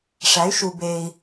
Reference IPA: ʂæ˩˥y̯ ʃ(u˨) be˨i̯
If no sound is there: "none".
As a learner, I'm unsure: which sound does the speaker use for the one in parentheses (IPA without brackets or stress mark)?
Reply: u˨